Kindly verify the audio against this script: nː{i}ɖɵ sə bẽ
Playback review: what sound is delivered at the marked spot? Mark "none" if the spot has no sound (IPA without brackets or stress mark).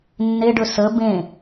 e